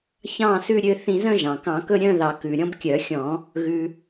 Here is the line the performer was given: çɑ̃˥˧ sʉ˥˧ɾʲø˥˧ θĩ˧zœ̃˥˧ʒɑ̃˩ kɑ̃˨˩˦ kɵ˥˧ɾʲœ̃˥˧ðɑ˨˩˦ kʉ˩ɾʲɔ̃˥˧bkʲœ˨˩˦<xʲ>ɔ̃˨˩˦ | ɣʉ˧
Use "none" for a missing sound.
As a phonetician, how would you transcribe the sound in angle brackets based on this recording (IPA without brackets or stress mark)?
xʲ